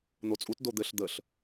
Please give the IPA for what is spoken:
n̪ o t͡sʼ u t d o d̪ ɘ ɬ d̪ ə ɬ

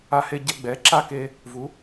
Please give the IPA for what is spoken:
a˧ h e˧ ɟ ɛ˧ ɡ͡b ɛ˩˥ ǁ a˥˩ k e˧ | v u˩˥

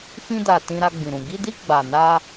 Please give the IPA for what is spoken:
f ĩ˧ d a˨ t ĩ˧ ɾ a˧ ɡ͡b ĩ˨ ɾ ũ˨ ɡ i˧ d i˧ ɡ͡b a˨ n a˧

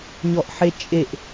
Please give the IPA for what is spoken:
ɲ ɔ ʔ ħ e t͡ʃʼ e ʔ

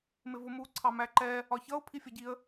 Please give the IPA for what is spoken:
m ɪ v ʊ m u ǀʰ ɑ m æ ǃ ɛ | ɒ ç ʌ ʊ̯ pʰ i fʲ ʌ ɟ i ə̯

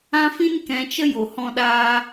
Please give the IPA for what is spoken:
ã˦ f ĩ˦ n k ɛ̃˨˦ t͡ʃ ə˦ j o˨ h ɔ̃˧ ɗ aː˧

